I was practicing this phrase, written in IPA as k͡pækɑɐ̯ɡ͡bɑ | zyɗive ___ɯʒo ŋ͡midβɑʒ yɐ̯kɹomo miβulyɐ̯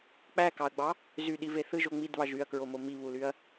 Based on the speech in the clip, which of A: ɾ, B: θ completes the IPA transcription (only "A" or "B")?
B